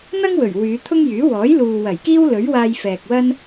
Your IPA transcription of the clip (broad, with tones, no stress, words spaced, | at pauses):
n̪ɐ˥ŋwɵ˨˩ɥ wyː˨˧t̪ʰʊ˥ŋjyː˨˥ wɔː˨˥j luː˨wɐ˨˩j kiː˥wlɵ˨˥ɥwaː˧j fɛː˨k̚wɐ˥n